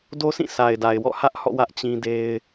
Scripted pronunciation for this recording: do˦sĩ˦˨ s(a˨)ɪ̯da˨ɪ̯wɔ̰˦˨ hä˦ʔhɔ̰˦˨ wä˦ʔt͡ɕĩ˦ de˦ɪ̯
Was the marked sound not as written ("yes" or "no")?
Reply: no